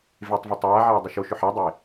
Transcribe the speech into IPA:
v e tˤ v ɘ tˤ aː ʕ a o̯ dˤ ʏ ʃ o ʃ ʏ ħ a dˤ o e̯

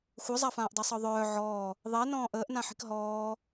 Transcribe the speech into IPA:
xʷ œ zˤ a f ãː ʔ dˤ əː sˤ ɒ ðˤ œː ʕ ɔː | ðˤ ɛ n ɔ̃ː ʔ əː ʔ n ã ħ i̤ k ɦ ɔː

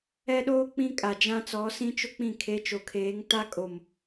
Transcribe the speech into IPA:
ɛ˦ ɗ oː˦ k͡p ĩ˦ kʼ a˨ d͡ʒ ã˦ t͡s ɔ˨˦ s ĩ˦ t͡ʃ ʊ˦ k͡p ĩ˦˨ kʰ e˨˦ t͡ʃ o˨ kʰ eː˨˦ ŋ t a˦ kʼ o˨ m

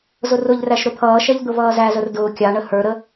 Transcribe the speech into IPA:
z ʊ r ʊ ʎ r æ ʃ ɾ ʊ t̪ʰ ʌː ʃ ɛ ʎ d̪ ʊ v ʌː z æ z ə r d ʊː kʲ ɑ ɳ ə h ə˞ ɾ ə

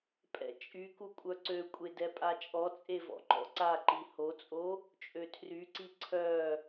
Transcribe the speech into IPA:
pʼ ɛ̰ t͡ʃʼ y k u kʷʼ œ ǀ ø kʷʼ e d ɛ pʼ a t͡ʃʼ ɔ t͡sʼ e v ɔ̰ ŋ͡ǃ ɔ̰ ǀ a ǃ i h o t͡sʼ o | t͡ʃʼ ø tʰ r y ǀ i ǀʰ œ

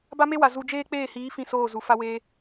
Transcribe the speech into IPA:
b a˦ m e˦ w a˨ z u˧ d͡ʒ eː˦ k͡p eː˦˨ h iː˨˦ f ĩ˦˨ s oː˦˨ z u˨ f a˧ w eː˧

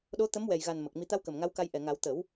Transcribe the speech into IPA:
ɗ o˧˥ t̪ ə˧˥ m w ɛ˨˩ j ɣ a˨˩ n m ə˨˩ k̚ m i˨˩˦ t̪ a˧˥ w k ə˨˩ m ŋ a˧˥ w k a˧ j ʔ ɛ˨˩ ŋ a˨˩˦ w t̪ ə˨˩˦ w

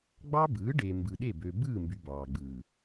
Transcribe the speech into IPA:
ɡ͡b ɑ˦ b ɯː˨˦ ɖ e˨ m b ɯ˨ ɗ e˦˨ b ø˨ b ɯː˦˨ m b y˨ b ɑː˨ ɡ͡b ɯː˨

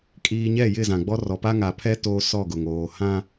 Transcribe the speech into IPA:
kʼ iː˨ ɲ ɛ˦˨ j ɪ˦˨ z ã˨ ɡ͡b ɔ˦ r ɔ˨ p a˦ ŋ a˨ pʰ ɛ˦ t oː˦ s ɔ˦˨ ɡ ʊ˨ ŋ oː˨ h ã˦

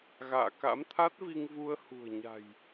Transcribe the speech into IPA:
ɣ a̰ː˧˨ k a̰˧˥ m t̪ʰ a˦˥ t̚ v i˧ ŋ v u˧ ə̯ h ṳ˨˩ ə̯ ɲ a̤˨˩ j

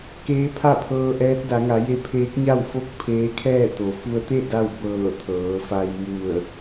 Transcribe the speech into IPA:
k eː˧˥ pʰ a˥˨ pʰ ɤː˧ ʔ ɛː˧˥ t̚ d a˩˧ ŋ a˩˧ j e˧˥ pʰ eː˧˥ k̚ ɲ a˥˨ w f o˥˨ k̚ pʰ eː˧˥ kʰ ɛː˥˨ t̪ o˩˧ f u˧ ə̯ t̪ e˥˨ d a˥˨ w b ɤː˧˩ t̪ʰ ɤː˩˧ f a˧ j m u˧˩ ə̯

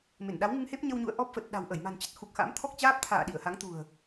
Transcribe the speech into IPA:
m e˧˩ n ɗ a˨˦ w ŋ ɨ˧ ŋ h e˦˥ p̚ ɲ ə˧ w ɲ ṵ˧˨ ə̯ ʔ ɔ˦˥ p̚ f ə˨˩ t̚ ɗ a̤˨˩ w ʔ ə˧˩ j m a̤˨˩ n t͡ɕ ə˦˥ t̚ x u˨˩ k̚ x a̰ː˧˥ m t̪ʰ ɔ˦˥ k̚ t͡ɕ aː˦˥ p̚ t̪ʰ a̰ː˧˨ ɗ i˧˩ ə̯ h a˨˦ ŋ t̪ ṳ˨˩ ə̯

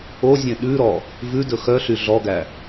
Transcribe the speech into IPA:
o zʲ ẽ ɗ ʉ ɾ ɔ | v ʉ d ɵ x œ ɬ y ɮ ɔ ɡ æ

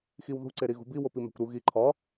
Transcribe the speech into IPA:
x i w ð ṳ ǀ e ɾ i ɣ ṳ b i w o p i m æ̤ kʷ ɾ u ɣ i ǃʰ ɒ

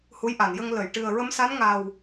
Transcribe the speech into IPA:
h u˧˥ j ʔ a˨˩˨ n j ə˧ ŋ l ə˨˩˨ j ʈ ɨ˨˩ ə̯ ɹ ə˧˥ m s a˧˥ n ŋ a˨˩ w

